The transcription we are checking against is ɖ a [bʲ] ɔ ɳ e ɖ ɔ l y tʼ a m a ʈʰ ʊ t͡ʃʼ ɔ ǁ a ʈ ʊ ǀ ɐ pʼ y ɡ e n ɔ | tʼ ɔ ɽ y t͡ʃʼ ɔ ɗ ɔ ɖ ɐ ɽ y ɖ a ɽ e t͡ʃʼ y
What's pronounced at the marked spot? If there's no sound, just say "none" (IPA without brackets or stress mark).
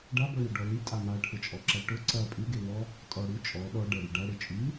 b